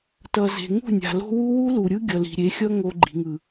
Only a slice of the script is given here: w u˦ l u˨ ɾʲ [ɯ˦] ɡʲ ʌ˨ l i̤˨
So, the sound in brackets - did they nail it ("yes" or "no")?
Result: yes